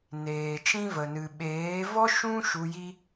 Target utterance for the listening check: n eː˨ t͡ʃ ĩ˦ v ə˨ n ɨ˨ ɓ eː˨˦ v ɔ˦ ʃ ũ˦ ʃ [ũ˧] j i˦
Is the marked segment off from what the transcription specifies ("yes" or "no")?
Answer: yes